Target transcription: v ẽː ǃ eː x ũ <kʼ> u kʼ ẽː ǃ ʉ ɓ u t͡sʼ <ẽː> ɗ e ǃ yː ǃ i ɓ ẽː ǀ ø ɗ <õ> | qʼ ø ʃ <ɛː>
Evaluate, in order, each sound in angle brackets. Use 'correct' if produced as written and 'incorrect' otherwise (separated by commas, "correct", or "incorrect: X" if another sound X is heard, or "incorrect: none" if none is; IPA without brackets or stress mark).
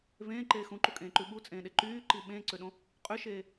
incorrect: ǃ, correct, correct, incorrect: eː